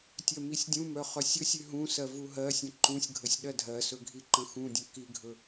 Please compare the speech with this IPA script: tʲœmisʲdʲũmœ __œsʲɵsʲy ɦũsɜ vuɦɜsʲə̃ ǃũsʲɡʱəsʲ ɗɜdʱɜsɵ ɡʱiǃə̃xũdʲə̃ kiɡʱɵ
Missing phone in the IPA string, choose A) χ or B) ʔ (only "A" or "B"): A